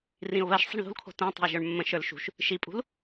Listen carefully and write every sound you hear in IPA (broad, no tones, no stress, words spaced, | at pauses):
rĩʊ̯βɜʃ sˤə̤ɳðṳlkʰo̤ tõtˤə̤ɪ̯ ʒə˞ɳmːə̃ ʃə˞lʃṳʃ | ʃipʼṳl